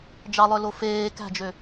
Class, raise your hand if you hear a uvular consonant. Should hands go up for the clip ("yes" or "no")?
no